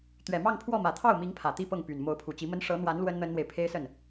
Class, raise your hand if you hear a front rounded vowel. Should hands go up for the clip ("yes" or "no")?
yes